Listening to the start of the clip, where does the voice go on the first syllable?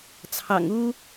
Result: low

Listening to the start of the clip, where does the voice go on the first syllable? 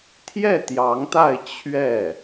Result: falling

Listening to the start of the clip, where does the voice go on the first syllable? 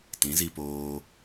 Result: rising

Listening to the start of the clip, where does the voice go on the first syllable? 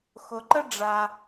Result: low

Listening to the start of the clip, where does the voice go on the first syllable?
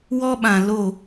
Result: high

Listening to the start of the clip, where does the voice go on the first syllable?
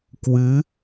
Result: rising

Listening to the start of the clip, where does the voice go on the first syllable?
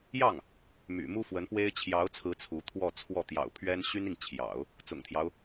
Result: falling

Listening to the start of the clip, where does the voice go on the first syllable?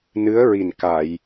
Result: rising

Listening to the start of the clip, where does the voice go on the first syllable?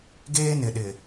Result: high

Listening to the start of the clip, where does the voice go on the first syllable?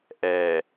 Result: low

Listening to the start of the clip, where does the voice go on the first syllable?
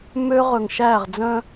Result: high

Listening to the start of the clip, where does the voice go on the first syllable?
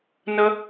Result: high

